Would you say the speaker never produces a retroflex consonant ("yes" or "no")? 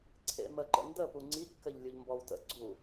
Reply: yes